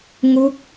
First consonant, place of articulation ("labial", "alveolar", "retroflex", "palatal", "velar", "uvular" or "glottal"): velar